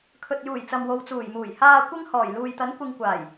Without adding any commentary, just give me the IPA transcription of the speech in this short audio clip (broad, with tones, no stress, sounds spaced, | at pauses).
kʰ ɵ˨ t̚ j uː˨˩ j t͡s ɐ˨ m w o˨˧ w t͡s uː˨˩ j m uː˨˩ j h aː˧ kʷ ɪ˥ ŋ h ɔː˨˩ j l uː˨ j t̪ ɐ˨˥ n kʷ ɪ˧ ŋ kʷ aː˨˩ j